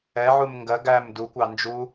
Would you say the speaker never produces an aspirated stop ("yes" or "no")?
yes